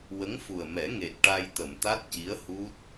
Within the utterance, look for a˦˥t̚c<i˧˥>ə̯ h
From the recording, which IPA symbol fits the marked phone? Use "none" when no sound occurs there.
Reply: i˧˥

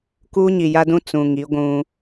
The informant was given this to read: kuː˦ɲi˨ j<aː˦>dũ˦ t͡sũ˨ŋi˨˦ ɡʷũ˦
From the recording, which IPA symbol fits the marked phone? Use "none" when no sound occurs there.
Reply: a˦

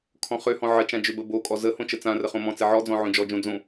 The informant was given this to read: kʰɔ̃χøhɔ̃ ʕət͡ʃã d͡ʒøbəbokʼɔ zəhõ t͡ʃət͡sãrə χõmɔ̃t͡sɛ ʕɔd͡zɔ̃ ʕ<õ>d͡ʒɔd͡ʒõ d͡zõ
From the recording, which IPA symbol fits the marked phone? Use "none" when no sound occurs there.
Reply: õ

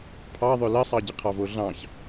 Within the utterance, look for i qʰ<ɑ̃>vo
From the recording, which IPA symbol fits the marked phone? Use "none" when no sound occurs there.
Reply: ɑ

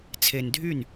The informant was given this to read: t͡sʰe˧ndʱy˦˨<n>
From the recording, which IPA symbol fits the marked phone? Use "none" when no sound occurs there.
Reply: n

